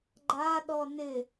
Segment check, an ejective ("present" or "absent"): absent